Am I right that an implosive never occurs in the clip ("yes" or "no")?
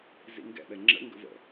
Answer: no